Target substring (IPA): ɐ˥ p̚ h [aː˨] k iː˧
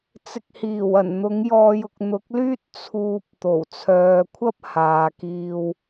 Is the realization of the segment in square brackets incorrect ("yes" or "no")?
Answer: no